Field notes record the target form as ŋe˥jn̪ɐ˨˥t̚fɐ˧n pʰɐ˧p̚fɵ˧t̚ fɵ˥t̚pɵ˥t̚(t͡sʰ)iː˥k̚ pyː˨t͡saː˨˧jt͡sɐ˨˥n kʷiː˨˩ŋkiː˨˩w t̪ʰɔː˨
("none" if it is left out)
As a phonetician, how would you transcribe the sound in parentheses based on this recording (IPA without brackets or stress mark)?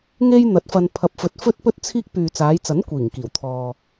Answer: t͡sʰ